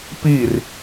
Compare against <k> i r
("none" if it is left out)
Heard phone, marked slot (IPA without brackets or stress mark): p